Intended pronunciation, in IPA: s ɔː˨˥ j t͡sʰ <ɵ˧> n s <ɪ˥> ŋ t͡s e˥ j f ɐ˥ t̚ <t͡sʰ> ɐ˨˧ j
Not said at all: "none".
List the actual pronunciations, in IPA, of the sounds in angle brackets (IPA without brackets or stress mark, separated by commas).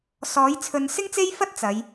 ɵ˨˧, ɪ˥, t͡s